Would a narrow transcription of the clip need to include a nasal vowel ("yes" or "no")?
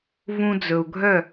yes